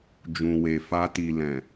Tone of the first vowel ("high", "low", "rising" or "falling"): low